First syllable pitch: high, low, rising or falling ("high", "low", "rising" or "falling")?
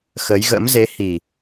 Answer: rising